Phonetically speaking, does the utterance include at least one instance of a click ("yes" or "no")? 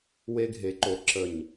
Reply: yes